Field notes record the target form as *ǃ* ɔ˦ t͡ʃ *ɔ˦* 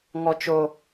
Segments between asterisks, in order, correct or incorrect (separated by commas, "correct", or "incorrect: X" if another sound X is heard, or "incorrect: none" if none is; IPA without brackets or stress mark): incorrect: ŋ, incorrect: o˦